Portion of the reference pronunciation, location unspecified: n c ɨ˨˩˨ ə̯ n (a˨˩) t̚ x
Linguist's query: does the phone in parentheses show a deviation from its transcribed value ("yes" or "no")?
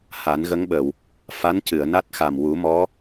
yes